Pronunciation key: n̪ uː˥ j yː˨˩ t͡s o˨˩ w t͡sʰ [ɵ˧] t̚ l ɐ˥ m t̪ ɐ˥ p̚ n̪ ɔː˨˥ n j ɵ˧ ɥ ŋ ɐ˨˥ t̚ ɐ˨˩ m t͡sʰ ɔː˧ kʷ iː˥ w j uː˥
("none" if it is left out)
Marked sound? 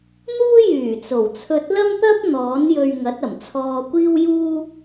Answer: ɵ˧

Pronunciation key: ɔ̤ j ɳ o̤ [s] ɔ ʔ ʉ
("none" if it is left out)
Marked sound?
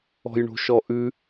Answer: ʃ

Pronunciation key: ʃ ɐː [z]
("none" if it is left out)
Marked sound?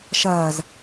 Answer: z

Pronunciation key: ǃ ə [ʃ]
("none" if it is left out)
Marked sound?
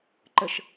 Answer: ʃ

